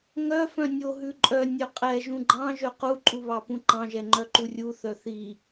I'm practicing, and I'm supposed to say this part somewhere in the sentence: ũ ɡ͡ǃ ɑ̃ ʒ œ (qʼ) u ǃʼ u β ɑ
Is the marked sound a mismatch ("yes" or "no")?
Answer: yes